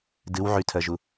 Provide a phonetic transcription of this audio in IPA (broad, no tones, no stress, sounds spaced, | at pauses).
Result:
d ɨ w ʕ y tʰ ɜ ʒ u